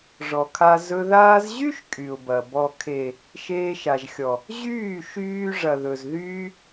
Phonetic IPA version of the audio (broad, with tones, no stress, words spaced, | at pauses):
ʐɔ˨kʰa˧ zɵ˧ ðaː˦z ʑy˦ʃ kʼy˨ʊ̯bɐ˨ bɔ˨kʰe˨ | ʃeː˧ʃa˨ʒxʲɔ˨ | ʑyː˦˨ʃyː˧ ʐɐ˨ðɵ˨z ðyː˦